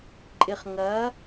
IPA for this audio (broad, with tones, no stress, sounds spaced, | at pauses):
ǃʼ ɪ˨ χ ŋ ɐ˨˦